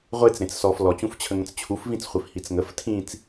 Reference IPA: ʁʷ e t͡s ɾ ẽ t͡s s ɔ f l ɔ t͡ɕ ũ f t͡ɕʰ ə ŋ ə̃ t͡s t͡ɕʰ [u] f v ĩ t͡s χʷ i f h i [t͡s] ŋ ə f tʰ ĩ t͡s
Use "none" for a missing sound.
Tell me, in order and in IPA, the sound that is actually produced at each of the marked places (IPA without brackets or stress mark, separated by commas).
u, t͡s